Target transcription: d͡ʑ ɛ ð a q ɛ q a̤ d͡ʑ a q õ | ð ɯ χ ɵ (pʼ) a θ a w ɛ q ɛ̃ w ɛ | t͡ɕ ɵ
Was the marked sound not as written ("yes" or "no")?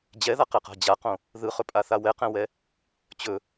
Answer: no